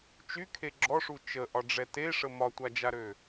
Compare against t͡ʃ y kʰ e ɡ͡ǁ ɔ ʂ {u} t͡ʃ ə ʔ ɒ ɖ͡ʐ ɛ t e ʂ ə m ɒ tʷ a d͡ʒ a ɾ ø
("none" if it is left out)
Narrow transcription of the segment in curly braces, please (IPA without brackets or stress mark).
u